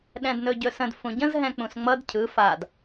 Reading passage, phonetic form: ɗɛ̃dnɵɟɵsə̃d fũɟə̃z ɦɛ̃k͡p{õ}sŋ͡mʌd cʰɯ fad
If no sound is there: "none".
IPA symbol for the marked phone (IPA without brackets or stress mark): ũ